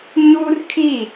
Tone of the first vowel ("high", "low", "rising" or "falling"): high